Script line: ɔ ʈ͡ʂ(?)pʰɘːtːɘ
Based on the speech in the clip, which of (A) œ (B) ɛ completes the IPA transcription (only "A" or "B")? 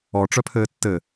A